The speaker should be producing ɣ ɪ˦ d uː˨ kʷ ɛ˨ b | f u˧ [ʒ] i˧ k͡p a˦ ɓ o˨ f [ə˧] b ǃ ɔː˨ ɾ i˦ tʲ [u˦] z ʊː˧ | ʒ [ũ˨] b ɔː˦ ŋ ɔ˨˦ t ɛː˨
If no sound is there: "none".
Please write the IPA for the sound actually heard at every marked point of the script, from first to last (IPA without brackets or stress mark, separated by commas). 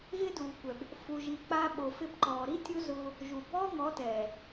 ʒ, ɪ˧, u˦, u˨